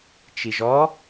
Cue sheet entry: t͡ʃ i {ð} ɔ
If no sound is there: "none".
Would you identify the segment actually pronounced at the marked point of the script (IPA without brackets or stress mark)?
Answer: ʒ